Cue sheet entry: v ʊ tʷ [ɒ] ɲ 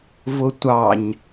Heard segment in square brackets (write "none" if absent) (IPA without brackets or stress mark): ɑ